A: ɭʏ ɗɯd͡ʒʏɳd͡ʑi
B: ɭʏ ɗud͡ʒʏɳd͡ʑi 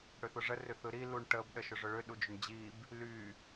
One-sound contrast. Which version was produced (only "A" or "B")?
B